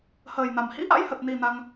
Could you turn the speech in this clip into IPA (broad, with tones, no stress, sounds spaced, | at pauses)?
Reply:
h əː˨˩ j n a˨˩ m h ḭ˧˥ ʔ a̰˧˥ j h ə˨˩ t̚ n i˨˩ n a˧ ŋ